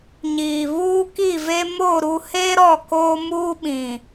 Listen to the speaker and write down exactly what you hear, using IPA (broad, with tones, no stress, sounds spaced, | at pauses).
ɲ iː˨ β uː˦ k i˦˨ v e˦ m o˦˨ ɾ u˦ h e˦ ɾ ɔ˦˨ k oː˦ m uː˦ ɓ ĩ˨